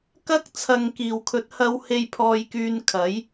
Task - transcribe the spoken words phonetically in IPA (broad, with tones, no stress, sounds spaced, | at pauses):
k ɐ˥ k̚ t͡sʰ ɐ˨ ŋ k iː˨˩ w kʰ ɵ˨˥ t̚ h ɐ˧ w h e˧ j pʰ ɔː˧ j k yː˧ n kʰ ɐ˨˥ j